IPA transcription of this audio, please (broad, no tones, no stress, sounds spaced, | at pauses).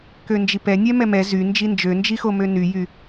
k ø n d͡ʒ i p ɛ nʲ ɛ m ɛ m ɛ z y n d͡ʒ i n d͡ʒ ø n d͡ʒ i x o m ø n y j y